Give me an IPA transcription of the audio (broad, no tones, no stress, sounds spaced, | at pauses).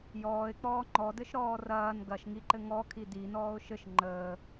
j ɔː ɪ̯ k͡p ɔː ŋ͡ǃ ɔ d ɘ ʃ ɾ ɔː r ɐː n ɡ ɐ ʃ ŋ i ǃ ɘ ŋ ɔ kʰ i d i n ɔː ʊ̯ ʃ ɘ ʃ ŋ͡ǃ əː